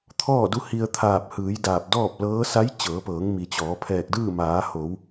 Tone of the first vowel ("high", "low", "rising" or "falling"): falling